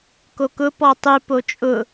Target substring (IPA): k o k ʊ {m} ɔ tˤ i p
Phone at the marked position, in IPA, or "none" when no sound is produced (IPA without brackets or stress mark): p